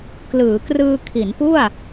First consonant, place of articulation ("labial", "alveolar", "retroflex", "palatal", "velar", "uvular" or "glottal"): velar